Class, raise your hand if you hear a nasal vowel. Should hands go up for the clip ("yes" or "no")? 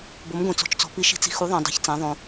yes